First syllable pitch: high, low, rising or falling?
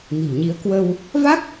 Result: low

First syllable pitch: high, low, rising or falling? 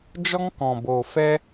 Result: high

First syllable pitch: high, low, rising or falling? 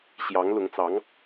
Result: rising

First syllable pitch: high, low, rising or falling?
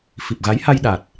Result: low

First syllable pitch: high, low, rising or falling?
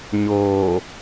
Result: low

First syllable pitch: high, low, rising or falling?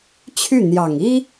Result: falling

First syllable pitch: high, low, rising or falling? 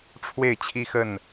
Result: falling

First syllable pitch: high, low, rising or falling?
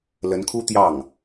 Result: rising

